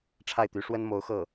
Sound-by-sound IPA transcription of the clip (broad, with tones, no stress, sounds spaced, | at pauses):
ʈ͡ʂʰ a˥˩ ɪ̯ t̪ y˧˥ ʂ w ə˥ n m o˧˥ ʊ̯ x ɤ˥˩